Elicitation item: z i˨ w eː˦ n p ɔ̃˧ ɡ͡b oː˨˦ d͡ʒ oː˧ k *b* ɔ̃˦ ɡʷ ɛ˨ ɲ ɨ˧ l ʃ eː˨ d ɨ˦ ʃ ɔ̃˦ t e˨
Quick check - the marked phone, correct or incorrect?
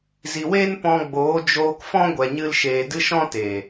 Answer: incorrect